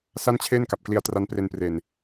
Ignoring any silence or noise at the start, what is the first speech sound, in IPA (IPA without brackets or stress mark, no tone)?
s